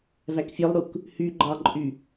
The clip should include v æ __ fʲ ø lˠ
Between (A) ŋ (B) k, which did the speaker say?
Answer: B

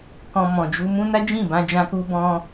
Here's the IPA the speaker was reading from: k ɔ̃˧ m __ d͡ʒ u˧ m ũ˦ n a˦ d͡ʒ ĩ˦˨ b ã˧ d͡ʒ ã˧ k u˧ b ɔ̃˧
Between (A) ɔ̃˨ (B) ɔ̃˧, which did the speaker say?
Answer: A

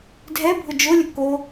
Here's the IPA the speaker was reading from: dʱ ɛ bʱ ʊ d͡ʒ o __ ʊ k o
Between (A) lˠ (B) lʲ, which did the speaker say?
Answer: B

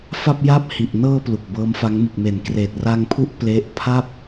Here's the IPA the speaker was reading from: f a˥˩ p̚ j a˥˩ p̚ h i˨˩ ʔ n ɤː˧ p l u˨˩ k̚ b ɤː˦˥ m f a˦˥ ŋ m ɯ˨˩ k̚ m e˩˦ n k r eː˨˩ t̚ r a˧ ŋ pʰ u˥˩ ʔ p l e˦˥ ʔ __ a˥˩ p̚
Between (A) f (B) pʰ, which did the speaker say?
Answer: B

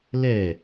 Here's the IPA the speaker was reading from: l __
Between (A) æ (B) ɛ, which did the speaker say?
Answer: B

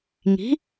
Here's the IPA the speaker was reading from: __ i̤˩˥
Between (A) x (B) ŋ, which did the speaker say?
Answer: B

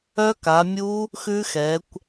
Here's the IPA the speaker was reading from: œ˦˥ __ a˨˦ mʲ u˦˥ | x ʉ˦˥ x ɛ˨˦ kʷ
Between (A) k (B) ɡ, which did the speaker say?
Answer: A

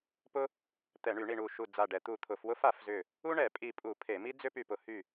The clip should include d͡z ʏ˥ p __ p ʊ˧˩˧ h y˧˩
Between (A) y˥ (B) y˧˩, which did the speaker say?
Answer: B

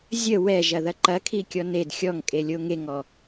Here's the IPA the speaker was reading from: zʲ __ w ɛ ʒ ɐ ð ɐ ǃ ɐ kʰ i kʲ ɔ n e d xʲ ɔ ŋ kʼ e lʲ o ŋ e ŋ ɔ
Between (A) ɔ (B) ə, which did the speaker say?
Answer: B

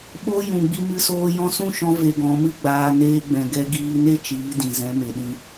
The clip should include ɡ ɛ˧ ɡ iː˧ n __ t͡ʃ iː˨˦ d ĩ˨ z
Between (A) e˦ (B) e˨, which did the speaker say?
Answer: A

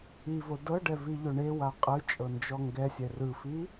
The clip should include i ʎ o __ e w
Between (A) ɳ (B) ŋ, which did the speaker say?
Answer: A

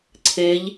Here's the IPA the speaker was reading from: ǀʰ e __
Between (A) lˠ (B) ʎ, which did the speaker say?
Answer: B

